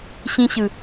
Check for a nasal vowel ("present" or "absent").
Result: present